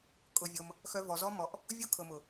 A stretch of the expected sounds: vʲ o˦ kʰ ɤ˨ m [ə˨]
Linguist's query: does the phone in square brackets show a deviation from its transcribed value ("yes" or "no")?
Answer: yes